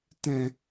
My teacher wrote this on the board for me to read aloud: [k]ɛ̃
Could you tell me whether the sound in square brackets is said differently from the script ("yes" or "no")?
yes